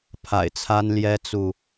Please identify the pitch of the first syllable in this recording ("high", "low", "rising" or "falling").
low